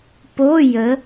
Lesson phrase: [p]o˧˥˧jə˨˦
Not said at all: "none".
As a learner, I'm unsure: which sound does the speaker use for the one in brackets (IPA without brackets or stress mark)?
p